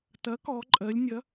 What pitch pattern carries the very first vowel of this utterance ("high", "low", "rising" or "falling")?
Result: rising